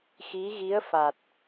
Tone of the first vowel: rising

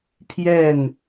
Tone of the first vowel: falling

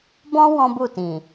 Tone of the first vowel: high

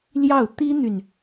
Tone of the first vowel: falling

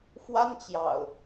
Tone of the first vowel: high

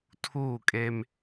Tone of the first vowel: falling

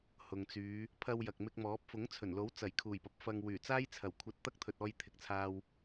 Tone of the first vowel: low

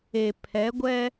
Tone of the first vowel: low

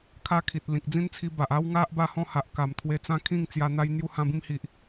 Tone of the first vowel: high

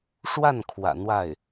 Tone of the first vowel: falling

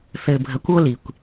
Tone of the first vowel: low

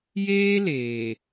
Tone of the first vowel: high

